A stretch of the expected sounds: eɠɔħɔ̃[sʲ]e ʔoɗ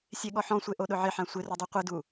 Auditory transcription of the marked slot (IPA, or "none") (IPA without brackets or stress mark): sʷ